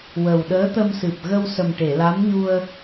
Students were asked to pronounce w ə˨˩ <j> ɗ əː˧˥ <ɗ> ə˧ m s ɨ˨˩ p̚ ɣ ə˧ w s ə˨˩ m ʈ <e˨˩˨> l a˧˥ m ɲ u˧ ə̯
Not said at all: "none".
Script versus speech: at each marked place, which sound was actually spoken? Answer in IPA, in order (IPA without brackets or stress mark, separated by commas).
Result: w, t̪, e˨˩˨